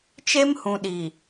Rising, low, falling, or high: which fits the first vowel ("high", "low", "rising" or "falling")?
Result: high